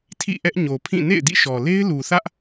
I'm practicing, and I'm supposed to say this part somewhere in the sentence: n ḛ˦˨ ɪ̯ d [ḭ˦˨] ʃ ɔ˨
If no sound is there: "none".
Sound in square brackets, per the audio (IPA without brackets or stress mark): ḭ˦˨